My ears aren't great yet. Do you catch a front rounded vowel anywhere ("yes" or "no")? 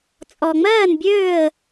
yes